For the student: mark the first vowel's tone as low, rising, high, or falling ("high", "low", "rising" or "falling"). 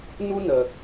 high